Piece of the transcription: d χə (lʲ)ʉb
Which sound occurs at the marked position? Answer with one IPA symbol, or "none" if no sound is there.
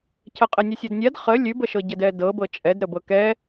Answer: lʲ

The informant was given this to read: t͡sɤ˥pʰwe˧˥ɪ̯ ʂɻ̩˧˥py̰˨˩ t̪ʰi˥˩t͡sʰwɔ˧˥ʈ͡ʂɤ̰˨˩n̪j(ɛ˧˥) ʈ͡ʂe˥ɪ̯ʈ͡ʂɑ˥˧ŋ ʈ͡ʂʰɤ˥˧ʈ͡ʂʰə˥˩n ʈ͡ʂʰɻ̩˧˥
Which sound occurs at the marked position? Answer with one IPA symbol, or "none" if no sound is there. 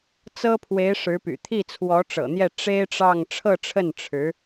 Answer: ɛ˥˩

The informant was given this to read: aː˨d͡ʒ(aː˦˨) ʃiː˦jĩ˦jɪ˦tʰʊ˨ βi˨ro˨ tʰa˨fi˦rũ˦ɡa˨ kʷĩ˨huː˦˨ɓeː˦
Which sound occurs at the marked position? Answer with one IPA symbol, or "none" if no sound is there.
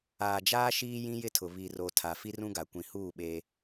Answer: aː˦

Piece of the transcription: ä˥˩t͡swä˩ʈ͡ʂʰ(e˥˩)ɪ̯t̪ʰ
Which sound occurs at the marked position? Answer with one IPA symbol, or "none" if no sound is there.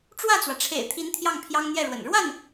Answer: ḛ˨˩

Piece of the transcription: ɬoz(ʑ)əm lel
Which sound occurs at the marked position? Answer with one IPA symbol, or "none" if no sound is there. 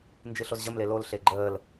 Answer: ʑ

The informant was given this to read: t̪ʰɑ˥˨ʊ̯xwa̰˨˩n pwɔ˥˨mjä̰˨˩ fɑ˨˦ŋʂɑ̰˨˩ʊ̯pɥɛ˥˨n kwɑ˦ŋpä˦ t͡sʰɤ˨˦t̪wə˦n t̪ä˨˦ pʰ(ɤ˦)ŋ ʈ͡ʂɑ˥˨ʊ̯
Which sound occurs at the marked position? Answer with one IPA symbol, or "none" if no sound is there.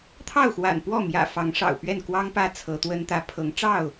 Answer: ɤ˨˦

